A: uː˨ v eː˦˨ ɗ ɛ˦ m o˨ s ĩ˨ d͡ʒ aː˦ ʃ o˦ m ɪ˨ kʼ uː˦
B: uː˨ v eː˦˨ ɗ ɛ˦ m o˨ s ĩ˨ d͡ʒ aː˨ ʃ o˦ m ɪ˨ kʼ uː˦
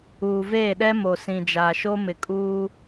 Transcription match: B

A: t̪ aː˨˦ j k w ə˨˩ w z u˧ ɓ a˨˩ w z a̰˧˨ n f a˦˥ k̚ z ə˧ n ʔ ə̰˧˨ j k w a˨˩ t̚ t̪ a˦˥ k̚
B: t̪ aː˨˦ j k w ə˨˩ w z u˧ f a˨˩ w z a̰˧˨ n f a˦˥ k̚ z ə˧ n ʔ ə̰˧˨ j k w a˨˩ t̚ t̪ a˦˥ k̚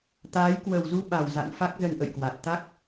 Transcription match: A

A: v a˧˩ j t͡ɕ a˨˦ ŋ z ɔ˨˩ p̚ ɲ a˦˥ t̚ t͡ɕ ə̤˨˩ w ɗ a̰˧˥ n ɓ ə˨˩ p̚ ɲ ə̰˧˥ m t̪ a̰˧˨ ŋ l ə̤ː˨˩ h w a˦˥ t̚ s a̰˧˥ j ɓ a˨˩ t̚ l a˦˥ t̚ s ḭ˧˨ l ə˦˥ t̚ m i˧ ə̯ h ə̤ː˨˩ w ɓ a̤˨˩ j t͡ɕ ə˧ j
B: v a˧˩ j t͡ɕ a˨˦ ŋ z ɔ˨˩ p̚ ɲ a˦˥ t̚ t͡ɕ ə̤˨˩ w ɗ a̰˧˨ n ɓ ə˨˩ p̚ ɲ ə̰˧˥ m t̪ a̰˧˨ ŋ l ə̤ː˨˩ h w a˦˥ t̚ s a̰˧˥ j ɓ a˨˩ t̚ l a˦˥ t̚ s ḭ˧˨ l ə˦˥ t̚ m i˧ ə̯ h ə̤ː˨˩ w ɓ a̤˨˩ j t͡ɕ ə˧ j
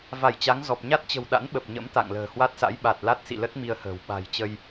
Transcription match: A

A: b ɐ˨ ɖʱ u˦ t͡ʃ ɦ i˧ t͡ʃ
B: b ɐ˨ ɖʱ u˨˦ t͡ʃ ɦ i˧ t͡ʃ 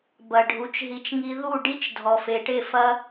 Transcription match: B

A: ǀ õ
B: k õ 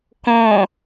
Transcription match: B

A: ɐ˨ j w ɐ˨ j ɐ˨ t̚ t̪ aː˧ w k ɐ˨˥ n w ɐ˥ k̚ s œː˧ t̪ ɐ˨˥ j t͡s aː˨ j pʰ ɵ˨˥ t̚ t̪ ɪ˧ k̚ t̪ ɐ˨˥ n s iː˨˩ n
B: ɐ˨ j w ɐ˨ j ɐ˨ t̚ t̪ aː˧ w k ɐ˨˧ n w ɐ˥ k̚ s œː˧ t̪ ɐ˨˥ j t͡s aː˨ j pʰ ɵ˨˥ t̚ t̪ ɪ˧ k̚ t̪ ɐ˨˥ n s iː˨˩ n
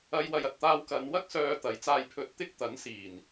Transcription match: B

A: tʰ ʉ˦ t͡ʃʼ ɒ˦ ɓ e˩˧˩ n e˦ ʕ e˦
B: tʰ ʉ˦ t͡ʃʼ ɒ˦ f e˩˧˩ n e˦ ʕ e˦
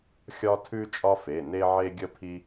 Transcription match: B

